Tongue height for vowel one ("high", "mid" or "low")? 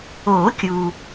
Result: mid